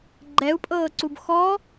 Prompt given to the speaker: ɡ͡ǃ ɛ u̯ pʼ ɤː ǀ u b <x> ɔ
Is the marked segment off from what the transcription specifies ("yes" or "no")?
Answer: no